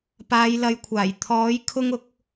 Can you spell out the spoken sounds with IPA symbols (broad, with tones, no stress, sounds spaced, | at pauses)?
p aː˨˧ j l ɐ˨˧ j kʷʰ aː˨˩ j t̪ʰ ɔː˨˥ j kʰ ʊ˥ ŋ ʊ˨˥ k̚